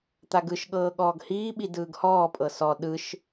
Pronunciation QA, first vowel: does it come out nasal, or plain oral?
oral